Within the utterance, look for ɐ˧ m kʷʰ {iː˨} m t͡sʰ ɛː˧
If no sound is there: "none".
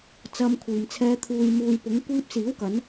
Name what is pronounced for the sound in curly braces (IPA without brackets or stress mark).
iː˨